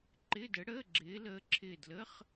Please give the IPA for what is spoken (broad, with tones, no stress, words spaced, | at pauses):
ǃɪ˧˥˧də˧˥ɽəː˧˥˧ ɡ͡ǁɪː˧˥ləː˧˥ǁʰɪː˦˨ dlə˧˥˧χ